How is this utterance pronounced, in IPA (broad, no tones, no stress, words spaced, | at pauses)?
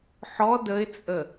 ħɔ dəɪ̯t͡sʼə